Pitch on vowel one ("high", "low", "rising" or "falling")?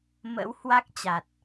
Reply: rising